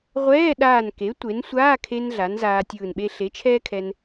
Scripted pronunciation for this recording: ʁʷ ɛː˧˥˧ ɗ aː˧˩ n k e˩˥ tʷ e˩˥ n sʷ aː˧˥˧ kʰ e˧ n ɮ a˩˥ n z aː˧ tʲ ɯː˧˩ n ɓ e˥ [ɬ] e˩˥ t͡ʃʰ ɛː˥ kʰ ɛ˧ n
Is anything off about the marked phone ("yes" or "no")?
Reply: no